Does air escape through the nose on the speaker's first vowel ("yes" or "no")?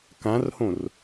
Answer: yes